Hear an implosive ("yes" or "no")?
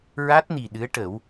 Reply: yes